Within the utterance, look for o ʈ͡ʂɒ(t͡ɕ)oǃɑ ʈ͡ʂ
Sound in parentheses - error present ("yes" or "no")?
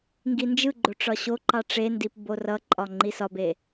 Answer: yes